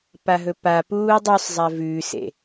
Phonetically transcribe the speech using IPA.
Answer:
p a ɦ ɵ p a p uː dˤ u sˤ zˤ a v ʉ s ḛ

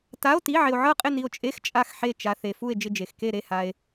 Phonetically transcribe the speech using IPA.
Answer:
t a˧˥˧ o̯ t i˧˥˧ ʕ ɪ˧ o̯ ʕ ɤ˥˧ qʼ ɪ˥˧ n i˧ o̯ t͡ʃʼ e˧˥˧ x t͡ʃʼ a˥˧ x ħ e˥˧ t͡ʃ a˧ θ e˧ f u˥˧ e̯ d͡ʒ ɪ˥˧ d͡ʒ e˧ x k e˥˧ ɾ e˥˧ h a˧ e̯

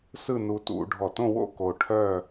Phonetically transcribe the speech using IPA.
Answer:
s ɯ˥˧ n u˧ t ṵ˧ ɖʱ ɔ˧˩ t õ˥˧ w o̰˥˧ k o˧ ʈʰ œ˥˧

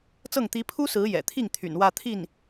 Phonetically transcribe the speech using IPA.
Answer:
t͡s ɤ˥˩ ŋ t̪ i˧˥ pʰ u˥ s ɹ̩˧˥ j ɛ̰˨˩ t̪ʰ i˥˩ ŋ t̪ʰ y̰˨˩ n w ä˥˧ t̪ʰ i˥˩ n

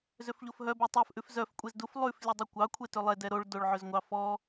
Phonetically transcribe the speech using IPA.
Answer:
z ø f ʎ o f ɦ œ b ɛ tˤ æ f ʔ ʉ f z œ f kʷʼ e z d u f lˠ ʉ f lʲ e dˤ ø kʷ ɑ kʷʰ e t ø lˠ ɛ d ɛ ɾ o ɭ d o ɭ ʕ ø z ŋʷ ɑ f ɔ

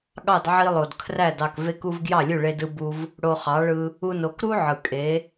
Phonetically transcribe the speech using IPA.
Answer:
ɠ ɑ˥˩ d ʕ i˧ lˠ o˩ d kʰ r æ˥˩ d ɑ˥˩ k v e˥ k u˥ v ɡ j ɑ˥˩ lʲ u˥˩ ɭ e˧ d ɯ˧ b u˧ v | ɽ o˧ χ ɑ˩˥ ɭ ɯ˧ | u˧ n o˩˥ k ɾ u˥ ʕ ɯ˩ kʼ e˩˥

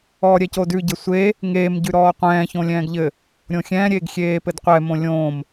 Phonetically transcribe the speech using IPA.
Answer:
ɔː ɾʲ ɛ c o d ʉ ɟ ɘ sʷ e | ŋ eː m ɟ ʉ ɾ ɔː qʷ ɛ̃ː ç õ lʲ ɛ̃ː ɡ ʎ ɘ | ɾʲ õ xʲ ɛ̃ː ɾʲ eː ɡ xʲ eː p ɘ d qʷ ɛ m õ lʲ õ m

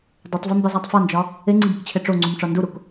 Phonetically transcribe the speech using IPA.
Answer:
dˤ o tˤ v e m b i zˤ æ tˤ f ɒ n d͡ʒ ɒ | e ŋ͡ǀ i ɡ i k t͡ɕʰ e ʈ͡ʂ o ŋ͡ǀ u m ʈ͡ʂ ɒ n d u ɾ u k

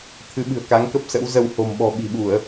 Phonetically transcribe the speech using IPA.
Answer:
t̪ʰ ɨ˨˦ ɓ ɨ̤˨˩ ə̯ k a˨˦ ŋ k ə˦˥ p̚ s ə̰˧˥ w z ə˧ w h o̤˨˩ m ɓ ɔ̤˨˩ ɓ i̤˨˩ ɓ u˧˩˨ ə̯

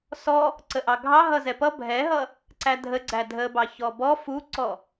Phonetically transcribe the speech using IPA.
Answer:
s ɔ | ǀ ə ʔ ɑ ɡʱ ɑ ɦ ʌ z ɛ p ʌ bʱ ɛ ɦ ʌ | ǀ æ dʱ ə ɡ͡ǀ æ dʱ ə b ɑ ç ɔ b ɔ f u ǀ ɔ

